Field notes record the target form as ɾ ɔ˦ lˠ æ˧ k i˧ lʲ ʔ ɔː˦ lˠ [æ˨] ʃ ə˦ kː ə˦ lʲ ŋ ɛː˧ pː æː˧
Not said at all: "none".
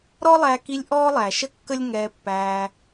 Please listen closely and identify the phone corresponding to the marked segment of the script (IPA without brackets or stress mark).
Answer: æ˨